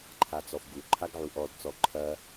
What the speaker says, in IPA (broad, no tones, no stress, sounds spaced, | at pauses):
ǃʰ a t͡s ɔ f ɡ u ǃʰ a ɡ ʕ u ʔ ɔ d t͡s ɔ ǃʰ ɐ